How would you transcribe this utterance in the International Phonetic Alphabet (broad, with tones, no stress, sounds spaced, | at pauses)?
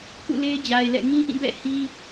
k ṵ˦˨ l e˦ ɪ̯ d͡ʑ a˨ ɪ̯ l ɛ̰˦˨ ŋ ĩ˦ ʔ ĩ˦˨ b ɛ̰˦˨ h i˦